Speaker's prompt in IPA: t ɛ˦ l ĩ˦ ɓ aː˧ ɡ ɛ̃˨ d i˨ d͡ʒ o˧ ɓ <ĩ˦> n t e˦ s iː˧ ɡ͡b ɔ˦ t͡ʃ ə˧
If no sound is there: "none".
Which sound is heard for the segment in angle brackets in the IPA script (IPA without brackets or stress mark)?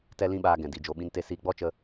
ĩ˦